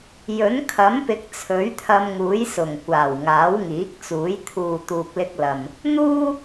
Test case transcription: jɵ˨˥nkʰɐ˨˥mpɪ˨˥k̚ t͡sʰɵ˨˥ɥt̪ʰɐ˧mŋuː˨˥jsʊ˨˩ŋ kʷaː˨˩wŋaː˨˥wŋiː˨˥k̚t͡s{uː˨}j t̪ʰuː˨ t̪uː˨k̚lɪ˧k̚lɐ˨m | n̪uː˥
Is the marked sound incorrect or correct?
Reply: incorrect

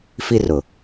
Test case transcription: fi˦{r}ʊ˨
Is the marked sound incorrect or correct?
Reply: correct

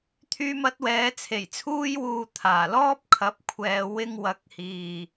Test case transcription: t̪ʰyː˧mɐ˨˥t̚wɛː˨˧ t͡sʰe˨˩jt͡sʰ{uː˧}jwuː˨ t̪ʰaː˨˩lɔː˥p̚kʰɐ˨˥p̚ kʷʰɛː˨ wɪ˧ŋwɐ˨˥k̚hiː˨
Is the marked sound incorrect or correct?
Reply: correct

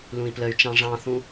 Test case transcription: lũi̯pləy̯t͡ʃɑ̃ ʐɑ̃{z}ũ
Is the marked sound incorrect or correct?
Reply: incorrect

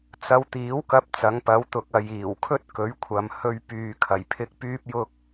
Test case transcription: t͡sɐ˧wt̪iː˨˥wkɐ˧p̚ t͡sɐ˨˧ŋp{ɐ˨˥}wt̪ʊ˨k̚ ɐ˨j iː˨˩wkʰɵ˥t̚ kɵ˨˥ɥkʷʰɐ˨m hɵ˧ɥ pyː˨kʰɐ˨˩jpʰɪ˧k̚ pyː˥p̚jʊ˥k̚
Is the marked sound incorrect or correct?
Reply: correct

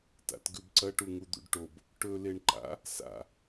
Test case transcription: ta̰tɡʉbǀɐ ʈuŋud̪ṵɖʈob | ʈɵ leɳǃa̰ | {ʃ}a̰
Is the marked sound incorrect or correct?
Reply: incorrect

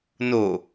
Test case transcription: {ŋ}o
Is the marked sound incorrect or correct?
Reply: incorrect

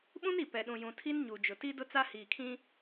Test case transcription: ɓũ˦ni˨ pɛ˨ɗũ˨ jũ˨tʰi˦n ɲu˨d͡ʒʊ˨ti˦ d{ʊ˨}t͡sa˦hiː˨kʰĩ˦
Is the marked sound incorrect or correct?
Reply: incorrect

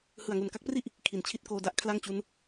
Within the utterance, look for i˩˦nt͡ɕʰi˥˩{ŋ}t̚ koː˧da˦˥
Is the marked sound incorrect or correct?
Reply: incorrect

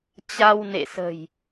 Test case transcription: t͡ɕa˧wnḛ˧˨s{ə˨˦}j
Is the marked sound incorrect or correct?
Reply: incorrect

